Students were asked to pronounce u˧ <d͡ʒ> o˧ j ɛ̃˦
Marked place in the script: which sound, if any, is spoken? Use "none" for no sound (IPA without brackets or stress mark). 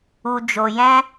d͡ʒ